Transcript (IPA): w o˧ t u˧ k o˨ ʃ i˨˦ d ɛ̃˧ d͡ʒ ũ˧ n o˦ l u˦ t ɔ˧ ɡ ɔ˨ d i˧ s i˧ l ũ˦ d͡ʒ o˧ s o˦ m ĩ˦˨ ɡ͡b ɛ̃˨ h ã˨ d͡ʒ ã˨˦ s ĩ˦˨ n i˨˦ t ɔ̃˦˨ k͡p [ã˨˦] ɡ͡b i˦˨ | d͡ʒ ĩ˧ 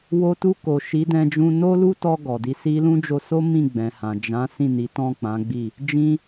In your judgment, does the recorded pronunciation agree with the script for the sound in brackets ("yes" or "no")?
yes